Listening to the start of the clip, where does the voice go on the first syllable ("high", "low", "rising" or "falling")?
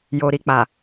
low